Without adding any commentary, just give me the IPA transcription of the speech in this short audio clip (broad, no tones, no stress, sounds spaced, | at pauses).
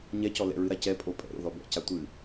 ɲ ɛ c ɔ l ɛ̰ ɹ ɨ ɾ a c ɛ pʼ o pʼ ɛ̰ ɾ o̰ ð ɔ b ɛ̰ c a tʷ ɨ